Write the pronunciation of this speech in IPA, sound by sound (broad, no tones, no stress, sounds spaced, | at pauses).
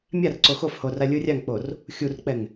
mʲ a r ǀ o x o f h o r a lʲ ɯ rʲ a ŋ k͡p o r | xʲ u r k͡p ɛ ŋ